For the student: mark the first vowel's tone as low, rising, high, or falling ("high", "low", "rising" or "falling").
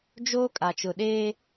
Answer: high